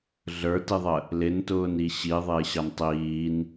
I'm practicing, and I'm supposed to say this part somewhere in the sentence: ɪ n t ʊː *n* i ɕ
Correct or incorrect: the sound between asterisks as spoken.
correct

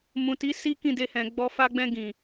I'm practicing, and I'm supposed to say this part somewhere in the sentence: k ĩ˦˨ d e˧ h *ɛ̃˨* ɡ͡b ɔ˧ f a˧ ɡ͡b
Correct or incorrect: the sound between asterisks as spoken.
correct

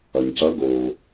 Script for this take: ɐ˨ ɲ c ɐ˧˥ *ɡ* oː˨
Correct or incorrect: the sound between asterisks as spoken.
correct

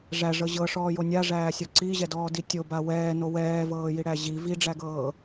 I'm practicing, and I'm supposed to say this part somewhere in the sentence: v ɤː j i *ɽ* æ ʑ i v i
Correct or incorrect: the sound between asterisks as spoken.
correct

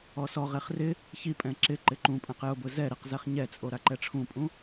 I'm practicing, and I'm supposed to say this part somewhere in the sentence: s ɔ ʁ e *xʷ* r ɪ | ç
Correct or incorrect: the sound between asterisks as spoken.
incorrect: χ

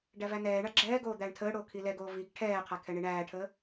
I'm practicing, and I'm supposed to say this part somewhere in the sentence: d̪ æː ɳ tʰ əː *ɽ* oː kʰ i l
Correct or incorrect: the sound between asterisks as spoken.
correct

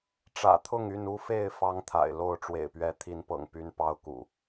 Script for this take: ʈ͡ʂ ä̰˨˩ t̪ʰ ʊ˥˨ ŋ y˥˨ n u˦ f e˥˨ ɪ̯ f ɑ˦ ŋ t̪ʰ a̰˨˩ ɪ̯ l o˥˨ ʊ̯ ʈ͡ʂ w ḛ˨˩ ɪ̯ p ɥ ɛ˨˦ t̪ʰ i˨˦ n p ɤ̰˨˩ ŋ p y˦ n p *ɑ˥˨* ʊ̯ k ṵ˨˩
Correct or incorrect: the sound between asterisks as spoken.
incorrect: ɑ˦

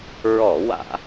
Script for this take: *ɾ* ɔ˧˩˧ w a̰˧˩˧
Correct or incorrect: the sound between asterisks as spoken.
incorrect: ɹ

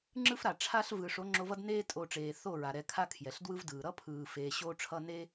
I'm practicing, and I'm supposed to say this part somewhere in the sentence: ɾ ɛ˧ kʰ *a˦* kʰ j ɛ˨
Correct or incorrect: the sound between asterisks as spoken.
correct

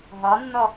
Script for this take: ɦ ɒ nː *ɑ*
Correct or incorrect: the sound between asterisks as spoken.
incorrect: ɔ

